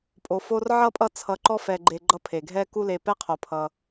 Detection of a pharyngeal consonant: present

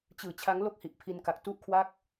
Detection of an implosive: absent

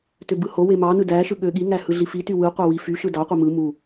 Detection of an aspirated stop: absent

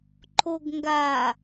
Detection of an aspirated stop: present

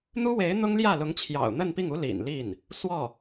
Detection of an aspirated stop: present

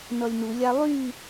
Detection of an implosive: absent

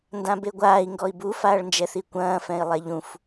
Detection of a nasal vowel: present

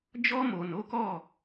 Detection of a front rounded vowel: absent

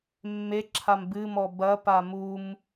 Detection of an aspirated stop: present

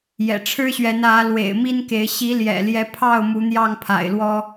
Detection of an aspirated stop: present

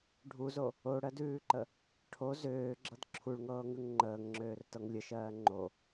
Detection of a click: present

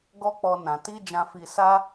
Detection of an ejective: absent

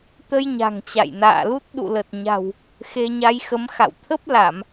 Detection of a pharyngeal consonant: absent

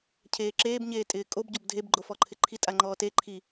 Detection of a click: present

